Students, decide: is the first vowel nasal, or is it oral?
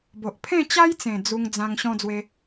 oral